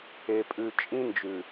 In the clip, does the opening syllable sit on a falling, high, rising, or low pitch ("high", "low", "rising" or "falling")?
low